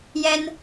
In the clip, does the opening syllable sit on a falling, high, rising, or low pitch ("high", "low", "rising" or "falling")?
high